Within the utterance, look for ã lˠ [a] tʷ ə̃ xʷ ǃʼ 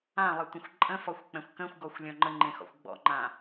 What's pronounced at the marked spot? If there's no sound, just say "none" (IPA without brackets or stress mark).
ə